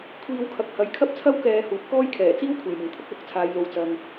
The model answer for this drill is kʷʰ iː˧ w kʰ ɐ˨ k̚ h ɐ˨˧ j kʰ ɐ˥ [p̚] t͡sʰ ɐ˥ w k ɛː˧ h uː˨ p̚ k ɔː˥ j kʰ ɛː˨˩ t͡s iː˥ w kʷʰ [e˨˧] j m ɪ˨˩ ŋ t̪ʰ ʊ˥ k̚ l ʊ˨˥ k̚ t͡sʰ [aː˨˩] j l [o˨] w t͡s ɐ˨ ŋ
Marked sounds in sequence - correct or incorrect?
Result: correct, incorrect: e˨˩, incorrect: aː˨˧, correct

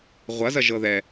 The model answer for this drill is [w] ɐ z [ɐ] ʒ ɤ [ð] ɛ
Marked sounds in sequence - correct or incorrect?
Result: incorrect: ʁʷ, correct, correct

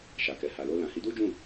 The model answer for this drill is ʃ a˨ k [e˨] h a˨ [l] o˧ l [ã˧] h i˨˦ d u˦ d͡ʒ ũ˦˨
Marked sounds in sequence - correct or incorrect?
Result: incorrect: ɛ˨, correct, incorrect: ã˨

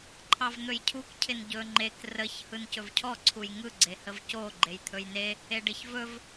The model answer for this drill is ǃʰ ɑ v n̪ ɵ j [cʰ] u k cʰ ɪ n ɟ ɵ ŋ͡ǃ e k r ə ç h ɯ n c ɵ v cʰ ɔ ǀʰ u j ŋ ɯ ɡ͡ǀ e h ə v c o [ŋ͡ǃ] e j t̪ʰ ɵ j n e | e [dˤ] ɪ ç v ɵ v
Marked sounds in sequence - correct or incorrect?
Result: correct, incorrect: ɡ͡ǃ, incorrect: ɖ

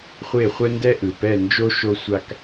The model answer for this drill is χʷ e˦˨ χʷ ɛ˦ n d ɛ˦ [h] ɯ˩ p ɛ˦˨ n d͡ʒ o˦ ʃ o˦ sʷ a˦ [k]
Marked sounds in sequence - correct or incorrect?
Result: incorrect: ʔ, correct

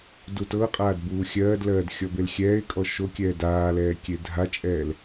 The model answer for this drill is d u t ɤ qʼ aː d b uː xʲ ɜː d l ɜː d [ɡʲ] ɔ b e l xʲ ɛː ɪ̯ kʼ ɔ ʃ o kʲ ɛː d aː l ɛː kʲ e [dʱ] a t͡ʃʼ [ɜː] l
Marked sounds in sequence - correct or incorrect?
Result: incorrect: xʲ, correct, incorrect: ɛː

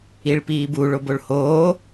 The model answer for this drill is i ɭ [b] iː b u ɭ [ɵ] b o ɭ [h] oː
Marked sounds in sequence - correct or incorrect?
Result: incorrect: p, incorrect: o, correct

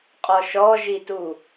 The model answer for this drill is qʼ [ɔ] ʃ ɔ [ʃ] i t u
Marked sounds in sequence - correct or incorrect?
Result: correct, incorrect: ʒ

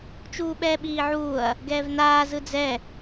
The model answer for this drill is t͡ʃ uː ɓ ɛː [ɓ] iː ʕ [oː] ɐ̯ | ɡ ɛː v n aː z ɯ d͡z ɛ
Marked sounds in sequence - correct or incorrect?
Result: correct, incorrect: uː

